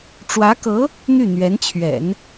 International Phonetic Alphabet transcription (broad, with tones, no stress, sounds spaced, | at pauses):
ʈ͡ʂ w ä˧˥ k ɤ˧˥ | n̪ y˥˩ n̪ ɥ ɛ˧˥ n t͡ɕʰ ɥ ɛ̰˨˩˦ n